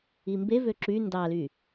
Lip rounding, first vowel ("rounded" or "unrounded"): unrounded